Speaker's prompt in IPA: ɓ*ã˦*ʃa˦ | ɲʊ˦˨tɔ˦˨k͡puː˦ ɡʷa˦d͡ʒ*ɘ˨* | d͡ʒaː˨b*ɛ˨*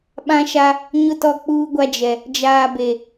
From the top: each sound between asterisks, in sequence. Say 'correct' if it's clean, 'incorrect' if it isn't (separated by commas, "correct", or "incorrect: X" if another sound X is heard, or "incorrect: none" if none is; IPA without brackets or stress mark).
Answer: correct, incorrect: ɛ˨, incorrect: e˨